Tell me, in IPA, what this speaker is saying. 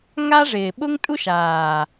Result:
ŋ a˦ ʐ ɪː˨ ɓ ʊ˦ ŋ tʼ u˦ ʃ aː˨

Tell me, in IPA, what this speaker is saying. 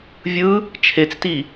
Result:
vʲ ɯ | t͡ʃʰ e t͡s t i

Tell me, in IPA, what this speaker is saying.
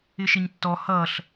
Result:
ɪ ʃ ɪ ɲ tː ɔ h ʌ ɬ

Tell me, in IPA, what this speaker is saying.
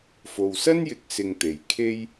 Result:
f o˨ w s ɐ˥ n j ɪ˨˥ k̚ s ɪ˧ ŋ t̪ e˨ j kʰ e˥ j

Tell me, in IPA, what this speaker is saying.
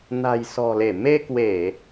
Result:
n a̤˨˩ j s ɔ̤˨˩ l e˧˩ m e˧ k w e˧˩˨

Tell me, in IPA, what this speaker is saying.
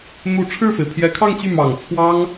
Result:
n̪ u˧˥ ʈ͡ʂʰ ɻ̩˥˩ f e˩ ɪ̯ pʰ j ɛ˧˥ kʰ ɑ˥˧ ŋ t͡ɕ y˥˩ m ɑ˨˩ ŋ t͡sʰ w ɑ˥ ŋ

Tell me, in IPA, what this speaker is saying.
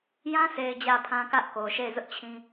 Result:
j ã˦ sʰ e˨ ɪ̯ d͡ʑ ä˨ pʰ ã˦ k ä˦ ʔ k o˨ ʃ e˦˨ ɪ̯ z ʊ˦ ʔ t͡ɕʰ ĩ˦

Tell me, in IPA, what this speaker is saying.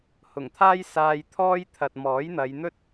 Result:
h ʊ˨˩ ŋ t̪ʰ aː˥ j s aː˧ j t̪ʰ ɔː˥ j t̪ʰ ɐ˨ t̚ m ɔː˨˥ j n̪ ɐ˨˧ j n̪ ɵ˥ t̚

